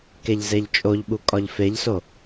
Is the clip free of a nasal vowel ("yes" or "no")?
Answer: yes